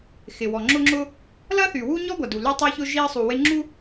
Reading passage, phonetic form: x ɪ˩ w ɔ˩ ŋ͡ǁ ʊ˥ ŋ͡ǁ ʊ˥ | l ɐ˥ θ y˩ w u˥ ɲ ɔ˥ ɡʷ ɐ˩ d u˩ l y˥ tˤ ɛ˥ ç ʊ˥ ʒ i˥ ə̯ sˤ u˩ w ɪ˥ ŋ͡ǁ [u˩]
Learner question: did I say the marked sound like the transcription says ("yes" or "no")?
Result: no